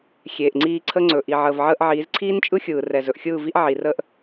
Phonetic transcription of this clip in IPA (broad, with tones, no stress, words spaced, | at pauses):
xʲeː˨ʔŋ͡ǀiː˧ǀʰə˦ŋ͡ǀɵ˨ ʔi˨ʕəː˨v ʕəː˧ʔʕiː˨˦z ǀʰiː˦nt͡ʃʼɯ˦ xʲɯː˨rɛ˨ zɵ˨ʔxʲɯː˦˨vi˦ʔ ʕi˨rəː˦ʔ